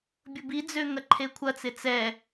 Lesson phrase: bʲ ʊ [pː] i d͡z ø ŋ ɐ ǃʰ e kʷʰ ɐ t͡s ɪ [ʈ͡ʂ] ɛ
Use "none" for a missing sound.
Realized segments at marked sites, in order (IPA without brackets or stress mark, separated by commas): b, t͡s